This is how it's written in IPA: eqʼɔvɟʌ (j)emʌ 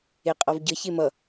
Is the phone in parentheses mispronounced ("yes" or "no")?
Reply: yes